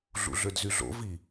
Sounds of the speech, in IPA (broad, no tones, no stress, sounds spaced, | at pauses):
ɮ ṵ ɮ ø d z y ɮ o̰ v i